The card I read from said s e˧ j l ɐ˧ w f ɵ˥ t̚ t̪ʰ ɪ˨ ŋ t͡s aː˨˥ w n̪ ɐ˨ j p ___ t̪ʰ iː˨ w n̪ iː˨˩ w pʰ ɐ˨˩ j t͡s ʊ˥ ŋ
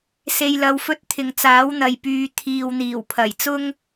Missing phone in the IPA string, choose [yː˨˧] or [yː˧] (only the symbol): yː˨˧